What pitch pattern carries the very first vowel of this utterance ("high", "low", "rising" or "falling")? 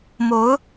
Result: rising